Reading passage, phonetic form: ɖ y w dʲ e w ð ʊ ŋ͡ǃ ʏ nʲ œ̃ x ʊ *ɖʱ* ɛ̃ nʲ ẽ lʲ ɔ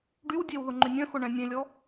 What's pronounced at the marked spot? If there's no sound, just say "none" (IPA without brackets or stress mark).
ɳ